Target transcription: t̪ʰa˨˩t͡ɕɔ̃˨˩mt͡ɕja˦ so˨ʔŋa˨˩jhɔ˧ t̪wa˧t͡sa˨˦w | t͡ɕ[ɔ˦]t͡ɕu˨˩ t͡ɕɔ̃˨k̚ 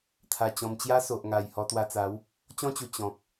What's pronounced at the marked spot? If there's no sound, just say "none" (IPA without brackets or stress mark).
ɔ̃˦